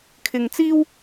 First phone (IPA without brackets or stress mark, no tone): kʰ